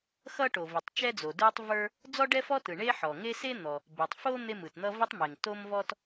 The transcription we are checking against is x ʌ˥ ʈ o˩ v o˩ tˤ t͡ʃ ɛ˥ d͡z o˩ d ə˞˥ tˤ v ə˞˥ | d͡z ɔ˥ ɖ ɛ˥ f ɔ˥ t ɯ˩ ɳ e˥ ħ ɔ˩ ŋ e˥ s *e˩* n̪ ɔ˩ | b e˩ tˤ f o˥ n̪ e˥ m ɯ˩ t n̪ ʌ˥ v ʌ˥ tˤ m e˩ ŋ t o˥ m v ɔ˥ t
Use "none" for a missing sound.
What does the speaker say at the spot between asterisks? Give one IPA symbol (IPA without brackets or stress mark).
e˥